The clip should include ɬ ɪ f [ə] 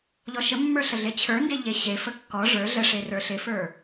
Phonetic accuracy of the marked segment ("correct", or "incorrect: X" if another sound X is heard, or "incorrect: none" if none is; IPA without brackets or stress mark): incorrect: ə˞